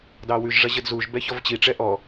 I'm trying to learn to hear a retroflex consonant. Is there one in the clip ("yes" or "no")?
yes